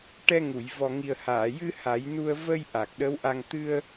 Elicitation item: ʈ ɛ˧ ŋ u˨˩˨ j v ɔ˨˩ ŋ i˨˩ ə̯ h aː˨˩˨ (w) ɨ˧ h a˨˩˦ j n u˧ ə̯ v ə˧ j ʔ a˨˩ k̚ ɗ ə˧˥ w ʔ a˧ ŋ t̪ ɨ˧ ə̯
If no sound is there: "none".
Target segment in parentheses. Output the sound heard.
j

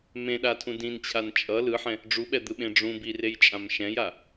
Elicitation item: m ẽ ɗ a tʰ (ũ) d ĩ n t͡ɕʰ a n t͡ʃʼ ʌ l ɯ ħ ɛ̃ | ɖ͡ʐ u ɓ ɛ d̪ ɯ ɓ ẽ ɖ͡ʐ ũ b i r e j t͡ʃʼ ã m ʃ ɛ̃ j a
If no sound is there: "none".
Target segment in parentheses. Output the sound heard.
ũ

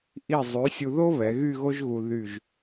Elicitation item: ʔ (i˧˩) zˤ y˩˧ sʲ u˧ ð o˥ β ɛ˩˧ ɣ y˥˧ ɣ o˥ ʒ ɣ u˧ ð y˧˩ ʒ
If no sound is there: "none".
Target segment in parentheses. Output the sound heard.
i˧˩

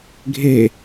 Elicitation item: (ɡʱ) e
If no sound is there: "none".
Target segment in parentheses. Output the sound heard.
ɡʱ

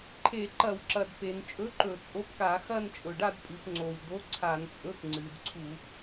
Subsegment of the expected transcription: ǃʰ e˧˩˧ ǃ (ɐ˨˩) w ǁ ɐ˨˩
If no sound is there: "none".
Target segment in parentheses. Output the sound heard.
ɐ˧˩˧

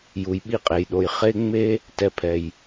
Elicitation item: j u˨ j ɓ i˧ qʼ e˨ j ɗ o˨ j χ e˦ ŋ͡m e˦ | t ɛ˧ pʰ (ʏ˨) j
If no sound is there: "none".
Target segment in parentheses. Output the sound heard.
ɛ˨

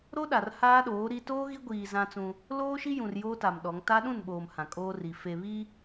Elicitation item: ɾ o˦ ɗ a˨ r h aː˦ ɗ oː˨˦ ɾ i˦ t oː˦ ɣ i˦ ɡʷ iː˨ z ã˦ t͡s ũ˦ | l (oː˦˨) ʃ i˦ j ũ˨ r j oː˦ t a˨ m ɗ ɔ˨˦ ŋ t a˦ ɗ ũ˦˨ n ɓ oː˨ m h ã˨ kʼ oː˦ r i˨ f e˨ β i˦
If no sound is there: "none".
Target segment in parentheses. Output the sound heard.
oː˦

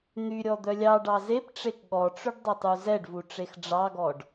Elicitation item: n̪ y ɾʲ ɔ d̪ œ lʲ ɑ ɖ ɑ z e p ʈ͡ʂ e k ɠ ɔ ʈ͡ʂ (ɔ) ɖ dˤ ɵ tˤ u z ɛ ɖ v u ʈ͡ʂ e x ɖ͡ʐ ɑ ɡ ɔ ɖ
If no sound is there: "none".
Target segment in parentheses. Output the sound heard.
ɵ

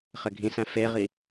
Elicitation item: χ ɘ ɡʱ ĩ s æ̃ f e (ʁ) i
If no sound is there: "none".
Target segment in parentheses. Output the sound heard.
ʁ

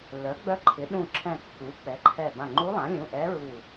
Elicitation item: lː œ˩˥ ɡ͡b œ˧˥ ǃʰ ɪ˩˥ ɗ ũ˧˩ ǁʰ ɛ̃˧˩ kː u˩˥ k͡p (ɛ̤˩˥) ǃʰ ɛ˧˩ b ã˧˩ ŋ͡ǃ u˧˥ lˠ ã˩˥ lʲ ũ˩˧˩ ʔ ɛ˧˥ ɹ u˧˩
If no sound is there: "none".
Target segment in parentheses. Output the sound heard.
ɛ˩˥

